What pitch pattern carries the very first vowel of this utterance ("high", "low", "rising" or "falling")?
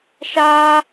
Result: high